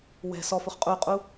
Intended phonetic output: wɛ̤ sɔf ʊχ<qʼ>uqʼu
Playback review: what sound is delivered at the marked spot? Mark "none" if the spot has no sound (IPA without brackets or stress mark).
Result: qʼ